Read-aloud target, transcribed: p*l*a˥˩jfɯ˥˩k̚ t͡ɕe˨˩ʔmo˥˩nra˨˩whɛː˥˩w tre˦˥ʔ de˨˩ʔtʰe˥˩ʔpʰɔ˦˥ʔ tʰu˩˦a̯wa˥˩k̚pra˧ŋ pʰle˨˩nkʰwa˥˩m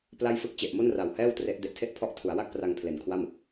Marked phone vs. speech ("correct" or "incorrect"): correct